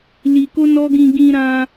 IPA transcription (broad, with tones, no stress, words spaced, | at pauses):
li˧ko˦nɔ˦ ɡĩ˧ɡĩ˧ɾã˧